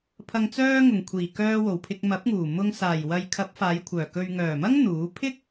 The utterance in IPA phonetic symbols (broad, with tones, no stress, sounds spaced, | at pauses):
pʰ ɐ˨ ŋ t͡s œː˧ ŋ ʊ˨˩ ŋ kʷʰ iː˨˩ k œː˧ w o˨˩ w pʰ ɪ˧ k̚ m ɐ˨˥ p̚ ŋ uː˨˩ m ʊ˧ ŋ s aː˨˩ j w ɐ˨ j kʰ ɐ˨˥ p̚ f aː˨˧ j kʷʰ œː˨˩ k ɵ˨ ɥ ŋ œː˨˩ m ɐ˥ ŋ n̪ uː˨˥ pʰ ɪ˥ k̚